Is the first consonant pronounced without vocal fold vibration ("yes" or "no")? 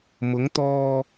no